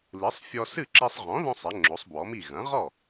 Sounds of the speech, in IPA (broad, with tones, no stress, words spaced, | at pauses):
lɨ˩˥sˤfʲɔ˧sɨ˥˩ǁi˧sˤ ʁɔ̃˩˥ðɔ̃˧sˤ ɛ˩˥ŋ͡ǁo˩˥sˤbwɔ˩˥mi˥˩ ɣɐ̃˩˥ʁɔ˥˩